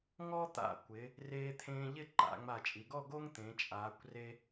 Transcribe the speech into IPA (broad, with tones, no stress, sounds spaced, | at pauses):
ŋ ɔ˥ t̪ a̰˧˩ kʷ ɪ˩˧ | r eː˧ t̪ʰ ẽː˧ ʎ ɪ˥˧ ǃ a̰˩˧ ŋ͡m a˧˩ t͡ʃʼ i˩˧ ɡ ɔ˥˧ ɡ o˥ ŋ t̪ ẽ˩˧ t͡ʃʼ aː˩˧ kʷ r e˧